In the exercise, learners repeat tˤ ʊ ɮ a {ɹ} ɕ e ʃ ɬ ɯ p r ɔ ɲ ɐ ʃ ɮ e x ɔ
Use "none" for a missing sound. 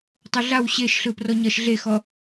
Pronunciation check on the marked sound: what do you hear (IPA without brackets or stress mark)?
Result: w